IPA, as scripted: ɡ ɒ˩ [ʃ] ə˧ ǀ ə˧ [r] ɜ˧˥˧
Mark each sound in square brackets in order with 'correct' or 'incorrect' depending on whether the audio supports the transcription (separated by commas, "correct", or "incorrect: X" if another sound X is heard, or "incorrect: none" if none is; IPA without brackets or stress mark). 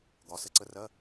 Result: incorrect: s, correct